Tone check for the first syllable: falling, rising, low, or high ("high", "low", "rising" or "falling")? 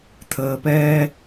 low